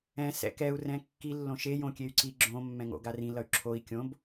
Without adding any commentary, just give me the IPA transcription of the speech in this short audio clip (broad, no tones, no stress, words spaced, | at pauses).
ɛ̃ sɛ̰kɛu̯ rɛ̃kːi lːõʃe jõkʲey̯ǀi ɡ͡ǁõ mːɛ̃ŋo̰ɡarĩ lʌy̯ǁʰoi̯ kʲõb